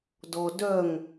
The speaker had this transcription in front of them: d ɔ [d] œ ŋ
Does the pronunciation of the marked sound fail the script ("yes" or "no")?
no